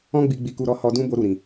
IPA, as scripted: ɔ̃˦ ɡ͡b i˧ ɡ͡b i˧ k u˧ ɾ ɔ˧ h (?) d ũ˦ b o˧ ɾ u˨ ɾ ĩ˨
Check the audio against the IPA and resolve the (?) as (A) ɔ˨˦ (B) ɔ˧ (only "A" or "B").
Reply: B